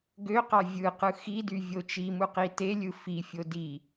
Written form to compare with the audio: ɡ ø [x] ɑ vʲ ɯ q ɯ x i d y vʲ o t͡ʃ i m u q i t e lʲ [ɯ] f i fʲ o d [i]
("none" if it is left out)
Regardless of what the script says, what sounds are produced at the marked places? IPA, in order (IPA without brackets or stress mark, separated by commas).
q, ɯ, i